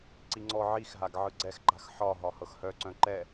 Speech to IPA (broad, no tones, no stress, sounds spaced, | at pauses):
ǀ i ŋ͡ǀ ɔ ʕ i x ɦ a ɡ ʕ ɯ ɡ͡ǀ ɛ x ǃ a̤ x ħ ɒ ɦ ɒ h ɤ x h œ ǀ œ̃ ǃ ɛ